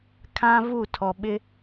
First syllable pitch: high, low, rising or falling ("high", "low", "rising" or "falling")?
high